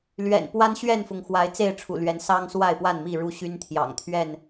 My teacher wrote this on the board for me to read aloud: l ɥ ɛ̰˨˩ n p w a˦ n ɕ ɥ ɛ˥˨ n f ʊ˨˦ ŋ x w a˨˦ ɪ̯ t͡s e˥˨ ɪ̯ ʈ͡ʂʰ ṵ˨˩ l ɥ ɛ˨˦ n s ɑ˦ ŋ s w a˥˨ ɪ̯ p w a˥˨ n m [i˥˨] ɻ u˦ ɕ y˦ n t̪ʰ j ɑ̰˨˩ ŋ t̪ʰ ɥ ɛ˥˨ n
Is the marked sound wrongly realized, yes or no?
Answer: no